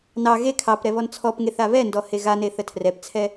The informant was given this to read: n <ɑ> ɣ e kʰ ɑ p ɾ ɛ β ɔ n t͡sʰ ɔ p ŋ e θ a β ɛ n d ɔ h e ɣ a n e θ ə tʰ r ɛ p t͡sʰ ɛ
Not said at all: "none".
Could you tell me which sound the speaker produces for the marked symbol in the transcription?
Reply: ɑ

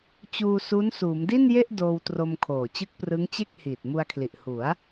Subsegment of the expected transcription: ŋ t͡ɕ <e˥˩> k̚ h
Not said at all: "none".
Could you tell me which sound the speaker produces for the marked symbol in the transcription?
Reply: e˥˩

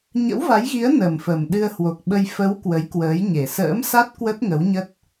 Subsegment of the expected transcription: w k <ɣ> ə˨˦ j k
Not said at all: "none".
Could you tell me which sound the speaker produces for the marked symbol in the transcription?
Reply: w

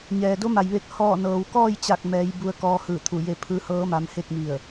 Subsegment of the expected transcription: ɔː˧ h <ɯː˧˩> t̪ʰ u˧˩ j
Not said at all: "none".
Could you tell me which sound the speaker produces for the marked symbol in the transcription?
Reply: ɯː˧˩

